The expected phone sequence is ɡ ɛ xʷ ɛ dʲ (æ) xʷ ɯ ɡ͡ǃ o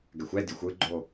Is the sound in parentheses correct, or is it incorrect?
incorrect